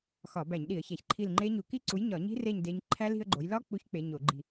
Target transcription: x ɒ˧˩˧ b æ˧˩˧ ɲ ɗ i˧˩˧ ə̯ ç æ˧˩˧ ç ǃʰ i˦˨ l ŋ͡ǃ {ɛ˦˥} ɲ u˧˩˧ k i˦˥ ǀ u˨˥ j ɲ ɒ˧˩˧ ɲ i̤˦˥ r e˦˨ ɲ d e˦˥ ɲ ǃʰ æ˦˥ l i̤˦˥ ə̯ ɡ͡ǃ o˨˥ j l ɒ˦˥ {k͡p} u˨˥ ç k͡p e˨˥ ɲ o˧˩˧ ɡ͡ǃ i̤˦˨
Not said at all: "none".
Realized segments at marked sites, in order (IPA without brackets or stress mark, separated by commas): e˦˥, k͡p